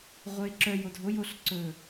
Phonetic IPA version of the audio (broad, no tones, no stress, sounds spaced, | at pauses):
ʁʷ œ ɪ̯ ǁ œ j o dʱ o j o ɬ ǀ ɵ